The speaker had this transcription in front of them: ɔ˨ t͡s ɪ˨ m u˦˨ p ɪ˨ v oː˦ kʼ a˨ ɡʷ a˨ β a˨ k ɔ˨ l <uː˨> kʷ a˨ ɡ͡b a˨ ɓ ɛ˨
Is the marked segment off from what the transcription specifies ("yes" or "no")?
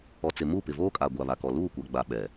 yes